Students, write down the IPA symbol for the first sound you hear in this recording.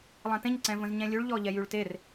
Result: lˠ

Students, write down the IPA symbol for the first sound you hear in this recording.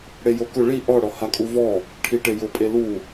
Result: ɽ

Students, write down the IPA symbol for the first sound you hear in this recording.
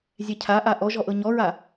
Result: zʲ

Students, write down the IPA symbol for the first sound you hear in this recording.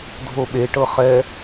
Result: dʱ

